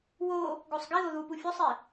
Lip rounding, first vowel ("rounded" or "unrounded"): rounded